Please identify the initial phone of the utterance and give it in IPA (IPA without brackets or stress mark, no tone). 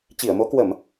t͡ɕ